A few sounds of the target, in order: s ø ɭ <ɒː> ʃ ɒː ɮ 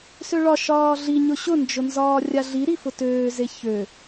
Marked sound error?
yes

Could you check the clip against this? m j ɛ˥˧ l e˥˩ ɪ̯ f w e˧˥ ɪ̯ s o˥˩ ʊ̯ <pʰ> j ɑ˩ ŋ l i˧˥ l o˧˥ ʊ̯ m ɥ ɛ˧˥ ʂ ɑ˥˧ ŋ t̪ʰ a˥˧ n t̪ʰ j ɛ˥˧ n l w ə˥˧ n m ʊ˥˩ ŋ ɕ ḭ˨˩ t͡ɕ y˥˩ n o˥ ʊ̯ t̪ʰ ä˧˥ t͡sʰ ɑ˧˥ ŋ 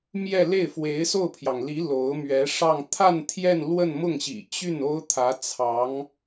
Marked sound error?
no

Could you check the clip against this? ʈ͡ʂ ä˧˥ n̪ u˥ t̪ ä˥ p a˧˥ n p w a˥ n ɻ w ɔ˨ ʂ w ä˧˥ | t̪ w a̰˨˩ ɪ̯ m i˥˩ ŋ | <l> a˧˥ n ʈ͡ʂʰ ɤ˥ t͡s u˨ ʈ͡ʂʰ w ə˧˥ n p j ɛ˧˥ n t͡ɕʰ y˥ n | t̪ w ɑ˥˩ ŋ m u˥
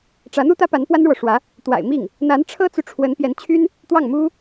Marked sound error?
yes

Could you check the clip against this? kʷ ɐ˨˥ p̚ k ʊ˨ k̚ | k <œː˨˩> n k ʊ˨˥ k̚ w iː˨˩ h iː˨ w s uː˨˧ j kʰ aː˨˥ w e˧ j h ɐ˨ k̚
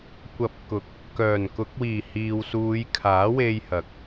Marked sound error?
no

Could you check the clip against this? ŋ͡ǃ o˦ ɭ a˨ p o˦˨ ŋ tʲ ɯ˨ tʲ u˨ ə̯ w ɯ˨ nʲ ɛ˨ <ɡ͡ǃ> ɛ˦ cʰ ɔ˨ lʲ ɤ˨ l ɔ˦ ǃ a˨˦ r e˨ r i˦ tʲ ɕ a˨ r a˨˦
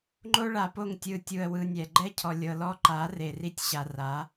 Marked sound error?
no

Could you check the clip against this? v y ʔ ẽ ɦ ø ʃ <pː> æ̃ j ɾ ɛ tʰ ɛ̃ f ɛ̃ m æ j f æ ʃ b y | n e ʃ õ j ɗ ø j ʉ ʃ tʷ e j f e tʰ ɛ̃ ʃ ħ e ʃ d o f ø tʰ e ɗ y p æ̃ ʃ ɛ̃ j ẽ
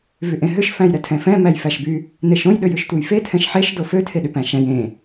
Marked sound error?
yes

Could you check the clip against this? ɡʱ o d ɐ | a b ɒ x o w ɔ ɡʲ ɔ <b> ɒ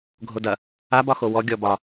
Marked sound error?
no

